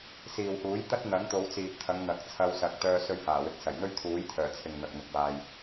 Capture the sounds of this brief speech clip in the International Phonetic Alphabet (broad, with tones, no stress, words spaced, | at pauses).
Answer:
siː˨whuː˨˥j t̪ɐ˥t̚n̪ɐ˨˥ŋ t̪o˨˧wt͡siː˨p̚t̪ʰɐ˨˧ŋ n̪ɐ˨k̚ t͡sʰɐ˧wsɐ˨k̚ t̪œː˧ sɵ˧ɥhaː˨˩wɪ˨k̚ sɐ˨˩jn̪ɵ˥ɥt̪ʰuː˨˥jt̪ʰœː˨˩ t͡sʰɪ˨ŋ n̪ɐ˨k̚n̪ʊ˨k̚waː˨j